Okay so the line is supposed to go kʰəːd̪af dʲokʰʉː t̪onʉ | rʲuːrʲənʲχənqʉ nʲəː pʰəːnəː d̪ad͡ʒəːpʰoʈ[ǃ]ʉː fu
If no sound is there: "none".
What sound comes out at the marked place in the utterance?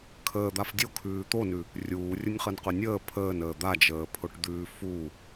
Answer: d̪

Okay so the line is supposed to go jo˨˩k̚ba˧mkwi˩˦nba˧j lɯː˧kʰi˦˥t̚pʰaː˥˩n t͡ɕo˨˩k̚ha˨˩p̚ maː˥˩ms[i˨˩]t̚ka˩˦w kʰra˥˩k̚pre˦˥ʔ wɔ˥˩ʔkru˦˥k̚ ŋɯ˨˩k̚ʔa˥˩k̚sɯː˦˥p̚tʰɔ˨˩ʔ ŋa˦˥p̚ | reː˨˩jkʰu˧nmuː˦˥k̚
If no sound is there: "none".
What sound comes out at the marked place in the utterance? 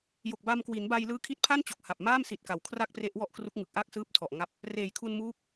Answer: i˨˩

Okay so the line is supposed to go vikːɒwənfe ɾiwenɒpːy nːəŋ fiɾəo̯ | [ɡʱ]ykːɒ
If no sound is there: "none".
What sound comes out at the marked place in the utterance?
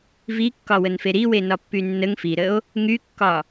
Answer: ŋ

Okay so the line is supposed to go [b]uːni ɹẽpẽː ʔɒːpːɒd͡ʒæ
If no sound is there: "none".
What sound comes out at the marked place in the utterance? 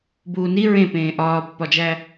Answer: b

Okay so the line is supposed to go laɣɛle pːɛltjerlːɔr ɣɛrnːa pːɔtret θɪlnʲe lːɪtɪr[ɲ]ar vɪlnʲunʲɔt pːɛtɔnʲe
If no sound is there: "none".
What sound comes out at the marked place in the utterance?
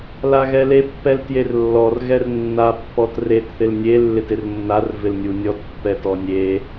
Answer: nː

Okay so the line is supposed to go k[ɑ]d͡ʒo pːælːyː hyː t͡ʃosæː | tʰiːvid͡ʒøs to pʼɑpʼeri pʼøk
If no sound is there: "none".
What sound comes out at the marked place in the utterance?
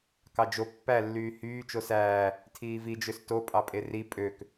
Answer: ɑ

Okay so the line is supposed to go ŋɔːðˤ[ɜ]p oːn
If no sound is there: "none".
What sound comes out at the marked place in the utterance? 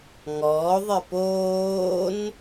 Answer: ɜ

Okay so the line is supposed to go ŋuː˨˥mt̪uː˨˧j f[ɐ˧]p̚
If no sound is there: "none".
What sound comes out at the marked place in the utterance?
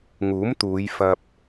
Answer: ɐ˧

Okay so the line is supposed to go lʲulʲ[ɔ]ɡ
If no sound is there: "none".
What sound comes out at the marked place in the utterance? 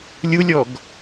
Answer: ɔ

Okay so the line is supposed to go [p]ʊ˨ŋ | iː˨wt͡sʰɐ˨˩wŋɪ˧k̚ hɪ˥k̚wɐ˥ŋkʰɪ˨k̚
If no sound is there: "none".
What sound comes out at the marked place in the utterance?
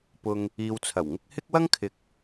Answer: p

